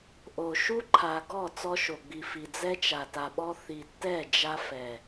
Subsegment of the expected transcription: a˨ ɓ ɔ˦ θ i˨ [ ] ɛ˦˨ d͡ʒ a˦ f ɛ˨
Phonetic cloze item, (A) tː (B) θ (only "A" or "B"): A